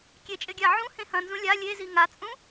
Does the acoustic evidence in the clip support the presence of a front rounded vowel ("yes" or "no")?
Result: no